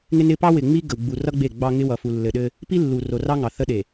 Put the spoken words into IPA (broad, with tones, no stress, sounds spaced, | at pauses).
ŋ ɪ˦ n ɪ˦ p ɑ˦ w ɪ˨ ŋ͡m i˦ ɡ ə˨ w ɡ͡b u˨ r ʌ˦ ɡ͡b e˦˨ ɡ͡b ɑ˦ ŋ ɪ˦ w ʌ˨ f u˨ lː ɘ˨ ɗ ɘ˦ | p i˦ lː u˨ r o˨ r ɑ˦ ŋ ɑ˨ θ ə˦ ɗ e˨